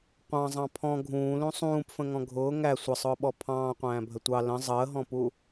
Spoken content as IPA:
qʷ ɑ̃ zˤ ɑ̃ pʰ ɔ̃ ɡʱ ũː l ũ sˤ ũː p f ə̃ ŋ ɔ̃ ɡʱ ʊː ŋ æ sʷ ə sˤ ʊː ɓ ɔ pʰ ɑ̃ː qʷ æ̃ː bʱ ə tʷ ɑ l ə̃ zˤ əː ɦ ɔ̃ p u

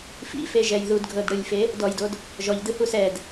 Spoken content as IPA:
f ḭ f e ʒ ɛ j ð u d ɡʱ ɤ d ɽ ɯ lʲ f e | d ɔ j d o d | ʒ ɔ ʎ d ɯ h u s ɛ d

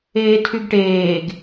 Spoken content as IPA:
eː tʰ y ɡ ʈ eː ɡ

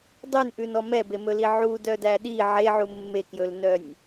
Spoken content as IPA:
dˤ ʉ n ʔ ʉ n ɔ m ɛ b e m ɵ l i ʕ u d œ d æ ɗ i ʕ e ʕ u mː e k j ɵ l n œ nʲ

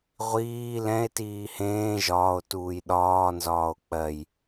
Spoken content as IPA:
ʁʷ iː l ɛ̃ e̯ t iː h ẽː ʒ ɒː o̯ t uː j ɗ ɒː n z ɒː o̯ k͡p ɜ j

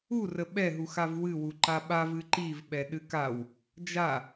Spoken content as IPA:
u r ə ɓ ɛ ɦ u x a v w ɨ w u ǃ a ɓ a v ɨ ǃ i v ɓ ɛ ɗ ɨ k a w | d͡ʒ a

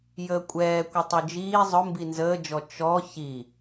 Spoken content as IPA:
j əː kʷʼ ɛː kʷ ə tˤ u d͡ʒ iː zˤ ʊ m b i n z əː d͡ʒ ɔ t͡ʃ ɔ ç i

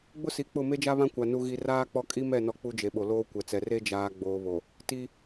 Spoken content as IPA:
ɡ͡b ʊ˦ s i˨ k͡p ʊ˦˨ m e˦ d͡ʒ a˦ β ã˦ kʷ a˨ n u˨ ɣ i˨ r aː˦ k͡p ɔ˦ kʼ i˦ m ɛ˦˨ n ɔ˦ k͡p u˦ d͡ʒ e˨ ɓ o˨ l oː˦ kʷ ɛ˨ t͡s ɛ˨ r e˦ d͡ʒ aː˨ ɡ͡b oː˨ β o˨ | t i˦

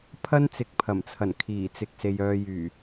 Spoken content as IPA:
pʰ ɐ˥ n t͡s ɪ˨˥ k̚ pʰ ɐ˨˩ m t͡sʰ ɐ˨˩ n kʰ iː˨˩ t͡s ɪ˨ k̚ s e˨ j œː˨ j yː˨˩

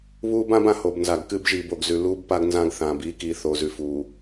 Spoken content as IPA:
β uː˦ b ã˦ b ã˨ h o˨ b n z a˨ ɡ k ɨː˦ b ʒ iː˨ b o˨ ɡ z ʉ˨ l uː˦ b p a˦ ɡ n z ã˦ ɡ θ ãː˨ b iː˦ k iː˨ θ o˨ z ʉ˨ f uː˨

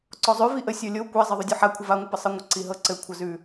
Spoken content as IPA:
ǀ ɔ zˤ ʉ v i ʔ ə sʲ ɔ lʲ o kʷ ɛ zˤ ɤ ðˤ ʉ dʲ ɔ ħ a kʷʰ ə v a ŋʷ ɘ p ɘ sˤ ɤ ŋʷ ə ǀ i ɦ ɤ ǀ ɘ kʷʰ ə z ʉ

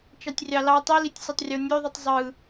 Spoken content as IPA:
t͡ʃ ɑ tʲ rʲ ɑ l ɑ tˤ i l i tʲ sʲ o tˤ rʲ o nʲ ø ðˤ u tˤ zˤ ɯ

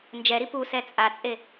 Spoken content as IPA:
n d͡ʒ ɛ ɾ i p u s ɛ t͡sʼ a t͡sʼ e

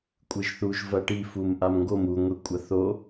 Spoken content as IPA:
kʷʼ ɨ ʒ θ u ʒ v ɐ ʈ i f u m ʔ a m ŋ ɡ o m u ŋʷ e kʷʼ ɐ θ o

